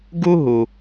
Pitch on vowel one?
high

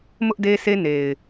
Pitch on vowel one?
high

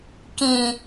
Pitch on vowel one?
low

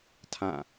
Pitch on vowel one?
falling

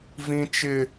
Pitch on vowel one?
high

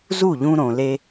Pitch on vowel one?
falling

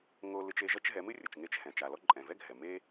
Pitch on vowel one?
high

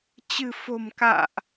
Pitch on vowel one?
low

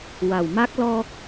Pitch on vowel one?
low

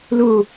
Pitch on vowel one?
falling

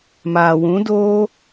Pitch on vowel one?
low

